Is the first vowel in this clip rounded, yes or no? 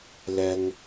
no